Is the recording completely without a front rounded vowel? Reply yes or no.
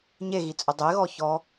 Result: yes